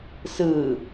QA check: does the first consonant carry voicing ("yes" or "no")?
no